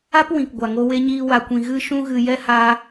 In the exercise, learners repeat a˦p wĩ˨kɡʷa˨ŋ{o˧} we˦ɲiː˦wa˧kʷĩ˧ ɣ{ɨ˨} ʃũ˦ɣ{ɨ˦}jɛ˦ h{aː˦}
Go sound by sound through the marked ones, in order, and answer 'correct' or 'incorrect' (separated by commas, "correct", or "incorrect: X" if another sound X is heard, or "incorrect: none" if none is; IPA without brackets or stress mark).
correct, incorrect: ɨ˦, incorrect: ɨ˧, correct